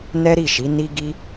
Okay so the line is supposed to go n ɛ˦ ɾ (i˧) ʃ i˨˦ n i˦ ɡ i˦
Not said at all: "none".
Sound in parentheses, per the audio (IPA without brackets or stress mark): i˦˨